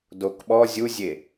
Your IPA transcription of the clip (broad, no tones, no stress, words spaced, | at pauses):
dokɓɔ zʲuzʲe